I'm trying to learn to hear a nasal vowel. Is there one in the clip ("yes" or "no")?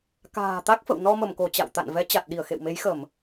no